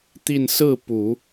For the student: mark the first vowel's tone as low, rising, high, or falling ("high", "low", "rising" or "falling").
falling